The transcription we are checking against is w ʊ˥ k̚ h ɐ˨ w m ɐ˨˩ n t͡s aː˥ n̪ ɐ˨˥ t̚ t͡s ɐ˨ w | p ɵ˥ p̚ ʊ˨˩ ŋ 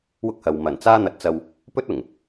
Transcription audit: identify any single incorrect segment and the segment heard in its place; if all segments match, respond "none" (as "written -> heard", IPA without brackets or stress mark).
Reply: p̚ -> t̚